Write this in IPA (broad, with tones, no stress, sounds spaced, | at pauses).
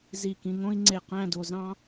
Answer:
z i˧˩ k ĩ˧ ŋ õ˥ i̯ ŋ͡ǀ e˧˩ q æ̃˥˧ d o˧ z ɑ̃˥